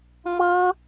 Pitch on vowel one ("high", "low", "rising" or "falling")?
high